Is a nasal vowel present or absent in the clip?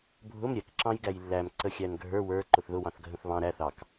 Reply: present